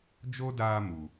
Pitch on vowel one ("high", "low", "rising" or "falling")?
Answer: high